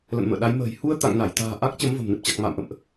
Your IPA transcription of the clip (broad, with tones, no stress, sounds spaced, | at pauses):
l ə̰˧˨ n m ə̰ː˧˨ ɗ a˨˦ j m ə̤ː˨˩ j h u˧ ə̯ t̪ a̰˧˨ ŋ n a˧˩ j t̪ a̤ː˨˩ ʔ a˦˥ k̚ t͡ɕ ə˨˦ m v ə̤˨˩ m n ɨ˨˩ p̚ t͡ɕ a˨˩ k̚ m a̰ː˧˨ m ʔ ə̰˧˨ m ʔ